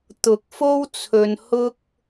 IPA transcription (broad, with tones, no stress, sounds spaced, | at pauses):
t̪ ʊ˨˥ k̚ f o˥ w t͡sʰ ɵ˨ n h ʊ˥ k̚